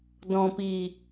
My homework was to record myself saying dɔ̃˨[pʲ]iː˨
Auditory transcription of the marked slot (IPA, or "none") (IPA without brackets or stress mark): p